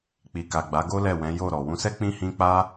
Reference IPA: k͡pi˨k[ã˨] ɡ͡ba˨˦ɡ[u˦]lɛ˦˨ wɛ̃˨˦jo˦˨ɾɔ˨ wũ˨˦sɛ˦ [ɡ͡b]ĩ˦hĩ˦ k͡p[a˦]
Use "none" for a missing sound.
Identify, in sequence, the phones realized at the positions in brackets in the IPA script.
a˨, o˦, k͡p, a˦

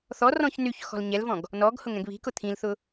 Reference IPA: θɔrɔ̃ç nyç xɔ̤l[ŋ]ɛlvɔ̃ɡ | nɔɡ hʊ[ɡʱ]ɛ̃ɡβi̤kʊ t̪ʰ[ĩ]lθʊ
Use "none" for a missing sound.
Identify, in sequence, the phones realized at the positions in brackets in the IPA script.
ɲ, ŋ, ĩ

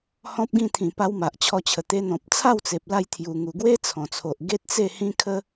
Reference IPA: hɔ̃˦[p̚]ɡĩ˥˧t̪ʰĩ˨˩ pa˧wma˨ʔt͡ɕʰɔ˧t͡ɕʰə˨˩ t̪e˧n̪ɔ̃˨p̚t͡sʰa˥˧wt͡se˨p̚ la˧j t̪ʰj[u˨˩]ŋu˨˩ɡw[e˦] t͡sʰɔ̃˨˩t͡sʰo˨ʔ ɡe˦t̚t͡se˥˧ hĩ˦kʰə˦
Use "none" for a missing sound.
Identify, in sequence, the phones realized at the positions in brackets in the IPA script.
p̚, u˨˩, e˦

